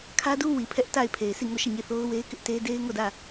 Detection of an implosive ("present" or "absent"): absent